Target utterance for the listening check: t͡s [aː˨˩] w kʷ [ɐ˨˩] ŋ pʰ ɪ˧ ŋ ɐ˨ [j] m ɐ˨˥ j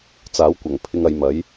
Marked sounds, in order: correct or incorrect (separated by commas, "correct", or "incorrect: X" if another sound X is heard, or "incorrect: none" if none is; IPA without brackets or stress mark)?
incorrect: aː˨˥, correct, correct